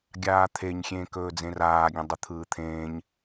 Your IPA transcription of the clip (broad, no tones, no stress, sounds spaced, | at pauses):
ɡʲ aː t̪ʰ e ɲ xʲ ẽː k ɵː d͡z ẽ r aː ɡʲ ɐ̃ dˤ ɵ t̪ʰ ɯː t̪ʰ ẽː ɲ